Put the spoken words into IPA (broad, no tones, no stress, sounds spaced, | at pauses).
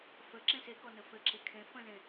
f ə ǁ ẽ s e k ɔ n ə f ɘ ǁ e kʰ ẽ f ə̃ z ẽ